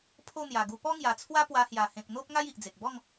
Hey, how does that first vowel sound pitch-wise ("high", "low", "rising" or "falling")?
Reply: falling